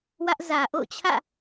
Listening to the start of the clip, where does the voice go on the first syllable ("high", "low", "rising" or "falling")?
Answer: high